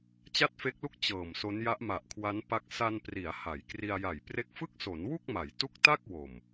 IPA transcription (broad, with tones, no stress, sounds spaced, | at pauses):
t͡ɕ a˥˩ t̚ f e˦˥ k̚ l u˥˩ k̚ t͡ɕ ɤː˨˩ m s o˦˥ n j a˦˥ ʔ m a˨˩ ʔ kʰ w a˦˥ n p a˦˥ k̚ s a˧ n p r i˩˦ a̯ h a˩˦ j k r i˧ a̯ j a˨˩ j p r e˦˥ k̚ f ɯ˥˩ k̚ s o˩˦ n w u˥˩ k̚ m a˩˦ j t u˦˥ k̚ t a˥˩ k̚ w o˨˩ m